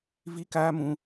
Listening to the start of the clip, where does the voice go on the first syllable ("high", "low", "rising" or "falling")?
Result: high